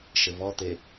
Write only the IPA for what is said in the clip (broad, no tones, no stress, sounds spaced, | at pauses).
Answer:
ʃ ɘ v ɔ t̪ e